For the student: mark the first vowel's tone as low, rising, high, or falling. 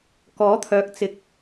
rising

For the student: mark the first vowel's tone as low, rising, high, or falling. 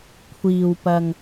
low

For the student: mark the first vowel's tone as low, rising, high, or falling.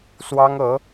high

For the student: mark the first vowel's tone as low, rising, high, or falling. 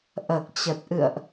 low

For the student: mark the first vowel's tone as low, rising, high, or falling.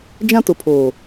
high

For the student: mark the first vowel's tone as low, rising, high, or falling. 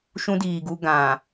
high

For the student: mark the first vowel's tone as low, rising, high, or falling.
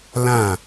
falling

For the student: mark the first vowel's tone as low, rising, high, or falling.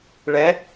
rising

